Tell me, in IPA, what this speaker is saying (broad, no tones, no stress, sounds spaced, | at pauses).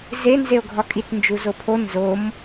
z e n z e o̯ ɡʱ ɒ kʼ i t n d͡ʒ u z o pʰ o n z o m